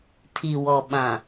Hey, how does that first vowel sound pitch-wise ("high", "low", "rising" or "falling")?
low